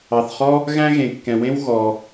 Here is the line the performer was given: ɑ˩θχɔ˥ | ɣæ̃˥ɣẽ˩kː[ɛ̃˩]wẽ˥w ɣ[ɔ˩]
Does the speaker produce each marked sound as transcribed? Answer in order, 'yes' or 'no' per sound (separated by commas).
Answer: yes, yes